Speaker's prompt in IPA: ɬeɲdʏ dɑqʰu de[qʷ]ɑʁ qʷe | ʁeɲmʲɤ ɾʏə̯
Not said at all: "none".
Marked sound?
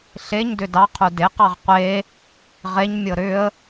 q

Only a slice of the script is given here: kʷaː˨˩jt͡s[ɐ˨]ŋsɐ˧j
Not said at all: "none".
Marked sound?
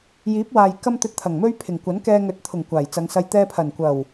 ɐ˨˧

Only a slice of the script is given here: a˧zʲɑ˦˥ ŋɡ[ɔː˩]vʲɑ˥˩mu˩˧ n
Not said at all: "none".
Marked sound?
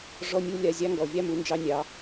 ɔ˩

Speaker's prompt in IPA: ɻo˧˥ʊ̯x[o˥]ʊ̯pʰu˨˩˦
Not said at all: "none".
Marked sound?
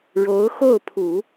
o˥˩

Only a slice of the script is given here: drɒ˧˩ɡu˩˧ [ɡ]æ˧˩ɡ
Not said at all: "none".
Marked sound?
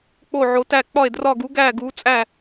ɡ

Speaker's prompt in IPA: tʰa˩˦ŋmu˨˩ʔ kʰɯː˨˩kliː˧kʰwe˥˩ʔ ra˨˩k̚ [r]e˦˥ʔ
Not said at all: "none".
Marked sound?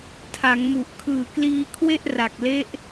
l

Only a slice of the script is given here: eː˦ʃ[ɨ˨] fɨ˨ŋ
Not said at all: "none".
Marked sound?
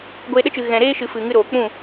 ɨ˨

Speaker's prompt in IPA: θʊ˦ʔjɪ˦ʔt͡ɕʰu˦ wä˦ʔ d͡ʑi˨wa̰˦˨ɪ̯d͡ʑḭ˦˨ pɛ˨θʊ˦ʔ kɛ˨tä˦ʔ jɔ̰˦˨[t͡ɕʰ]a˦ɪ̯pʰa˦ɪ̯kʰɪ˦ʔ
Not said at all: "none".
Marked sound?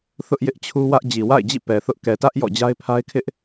d͡ʑ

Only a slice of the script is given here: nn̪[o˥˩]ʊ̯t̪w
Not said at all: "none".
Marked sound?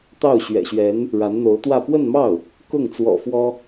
o˧˥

